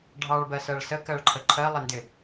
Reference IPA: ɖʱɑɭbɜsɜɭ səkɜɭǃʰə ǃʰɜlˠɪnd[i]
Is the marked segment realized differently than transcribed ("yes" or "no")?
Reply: yes